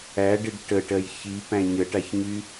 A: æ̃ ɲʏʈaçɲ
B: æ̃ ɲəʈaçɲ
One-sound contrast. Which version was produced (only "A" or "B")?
B